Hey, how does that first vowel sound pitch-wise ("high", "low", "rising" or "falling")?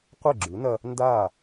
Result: falling